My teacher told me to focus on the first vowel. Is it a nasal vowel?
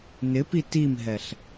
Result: no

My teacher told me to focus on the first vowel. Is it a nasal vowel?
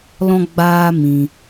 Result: yes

